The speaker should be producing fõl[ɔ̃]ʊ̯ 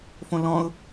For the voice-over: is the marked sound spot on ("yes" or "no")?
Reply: yes